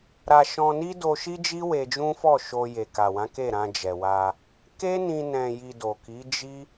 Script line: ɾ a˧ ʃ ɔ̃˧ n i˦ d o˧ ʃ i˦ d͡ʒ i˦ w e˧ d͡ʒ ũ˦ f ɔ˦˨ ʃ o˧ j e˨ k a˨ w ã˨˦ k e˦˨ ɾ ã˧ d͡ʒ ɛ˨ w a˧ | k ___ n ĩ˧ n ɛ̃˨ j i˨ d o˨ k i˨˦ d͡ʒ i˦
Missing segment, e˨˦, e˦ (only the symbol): e˦